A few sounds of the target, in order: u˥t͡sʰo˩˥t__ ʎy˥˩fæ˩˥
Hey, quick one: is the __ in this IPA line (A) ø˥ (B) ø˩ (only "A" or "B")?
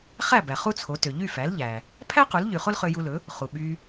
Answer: B